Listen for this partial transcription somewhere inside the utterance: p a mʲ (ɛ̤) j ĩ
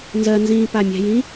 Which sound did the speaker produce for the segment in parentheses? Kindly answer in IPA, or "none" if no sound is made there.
ɛ̤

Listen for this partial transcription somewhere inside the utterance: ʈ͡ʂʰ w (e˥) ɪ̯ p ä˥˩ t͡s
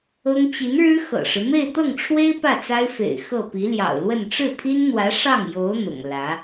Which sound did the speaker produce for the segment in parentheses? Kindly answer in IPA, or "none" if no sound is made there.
e˥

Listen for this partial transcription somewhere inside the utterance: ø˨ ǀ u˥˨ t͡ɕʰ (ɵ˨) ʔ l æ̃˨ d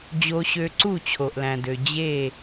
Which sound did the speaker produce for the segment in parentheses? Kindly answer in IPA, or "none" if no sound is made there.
o˨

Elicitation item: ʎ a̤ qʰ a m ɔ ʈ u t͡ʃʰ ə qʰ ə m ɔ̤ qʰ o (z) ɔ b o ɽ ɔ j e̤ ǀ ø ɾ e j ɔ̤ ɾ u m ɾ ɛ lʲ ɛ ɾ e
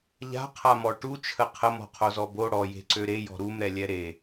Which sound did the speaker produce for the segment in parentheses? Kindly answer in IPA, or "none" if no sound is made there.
z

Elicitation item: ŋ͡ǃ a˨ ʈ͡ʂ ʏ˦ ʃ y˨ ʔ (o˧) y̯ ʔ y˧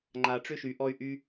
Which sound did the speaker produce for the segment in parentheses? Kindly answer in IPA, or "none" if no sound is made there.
ɔ˧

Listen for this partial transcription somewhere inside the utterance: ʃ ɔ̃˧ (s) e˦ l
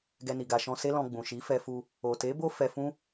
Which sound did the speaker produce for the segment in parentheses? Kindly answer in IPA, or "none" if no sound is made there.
s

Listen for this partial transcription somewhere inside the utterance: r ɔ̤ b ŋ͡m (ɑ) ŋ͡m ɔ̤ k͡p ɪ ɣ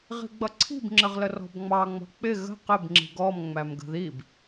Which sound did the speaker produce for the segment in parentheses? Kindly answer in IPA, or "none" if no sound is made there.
ɑ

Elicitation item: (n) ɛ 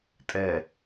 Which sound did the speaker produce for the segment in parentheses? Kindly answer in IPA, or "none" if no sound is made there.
tʼ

